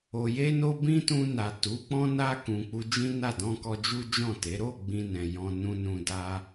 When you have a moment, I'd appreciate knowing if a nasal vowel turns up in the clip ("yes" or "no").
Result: yes